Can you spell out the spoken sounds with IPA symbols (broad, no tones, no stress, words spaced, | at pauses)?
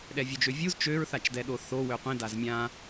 ɗɛvʲud͡ʒøvʲuz t͡ʃøɹθat͡ʃdɛɗo θo wøqʷĩ dazmʲã